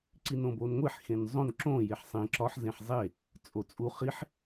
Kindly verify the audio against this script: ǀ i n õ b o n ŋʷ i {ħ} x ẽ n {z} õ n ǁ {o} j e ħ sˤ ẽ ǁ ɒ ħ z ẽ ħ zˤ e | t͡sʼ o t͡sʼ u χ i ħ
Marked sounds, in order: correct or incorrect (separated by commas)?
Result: correct, incorrect, incorrect